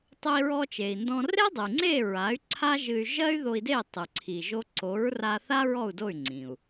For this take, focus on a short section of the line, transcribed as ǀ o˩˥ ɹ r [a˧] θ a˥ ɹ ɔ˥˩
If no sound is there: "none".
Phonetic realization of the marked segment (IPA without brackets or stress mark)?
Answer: a˧